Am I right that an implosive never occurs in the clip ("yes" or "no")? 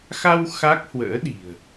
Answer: no